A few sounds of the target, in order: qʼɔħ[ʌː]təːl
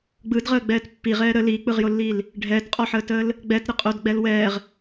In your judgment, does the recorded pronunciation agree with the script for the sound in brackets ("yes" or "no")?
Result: no